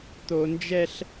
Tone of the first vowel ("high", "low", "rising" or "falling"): high